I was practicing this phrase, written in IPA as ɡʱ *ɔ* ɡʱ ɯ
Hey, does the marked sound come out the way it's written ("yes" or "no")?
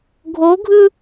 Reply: no